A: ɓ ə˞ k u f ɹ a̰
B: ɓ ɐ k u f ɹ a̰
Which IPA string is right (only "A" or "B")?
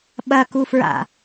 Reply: B